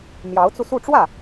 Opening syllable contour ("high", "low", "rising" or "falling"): rising